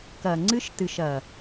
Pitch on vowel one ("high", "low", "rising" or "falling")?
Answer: low